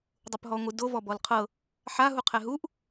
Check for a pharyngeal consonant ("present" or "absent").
present